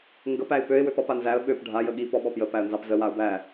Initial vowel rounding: unrounded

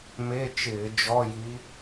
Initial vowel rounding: unrounded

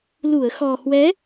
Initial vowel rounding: rounded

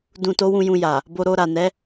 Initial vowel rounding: rounded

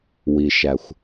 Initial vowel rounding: unrounded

